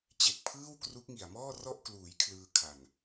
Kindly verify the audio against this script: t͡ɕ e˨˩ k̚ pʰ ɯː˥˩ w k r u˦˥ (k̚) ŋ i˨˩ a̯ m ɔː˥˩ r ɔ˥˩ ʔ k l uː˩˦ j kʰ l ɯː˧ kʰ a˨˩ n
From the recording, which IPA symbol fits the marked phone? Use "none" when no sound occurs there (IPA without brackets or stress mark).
k̚